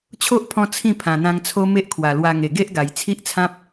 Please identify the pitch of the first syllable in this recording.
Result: high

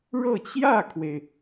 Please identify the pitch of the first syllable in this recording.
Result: falling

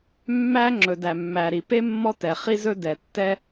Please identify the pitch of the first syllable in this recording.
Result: high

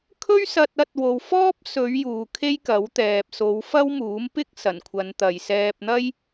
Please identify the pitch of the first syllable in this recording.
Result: high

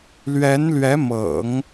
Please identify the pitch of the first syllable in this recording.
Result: rising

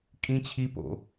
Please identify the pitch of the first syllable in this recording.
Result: high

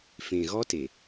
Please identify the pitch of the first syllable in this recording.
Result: low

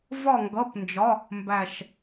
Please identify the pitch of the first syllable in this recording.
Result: falling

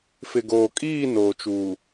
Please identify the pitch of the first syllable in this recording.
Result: low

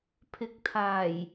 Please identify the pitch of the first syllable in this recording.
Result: rising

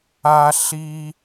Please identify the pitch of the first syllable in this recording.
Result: high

